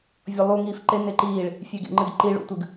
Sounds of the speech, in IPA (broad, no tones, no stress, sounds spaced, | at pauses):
vʲ ɔ lˠ u ŋ iː f ǃ e n e ǃ iː ɭ | fʲ e ɡ ḛ ŋ͡ǃ ɨ ɡ ǃ i ɭ ṵ tʷ ɨ ɡ